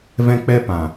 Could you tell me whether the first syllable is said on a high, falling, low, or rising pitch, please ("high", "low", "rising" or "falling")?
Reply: high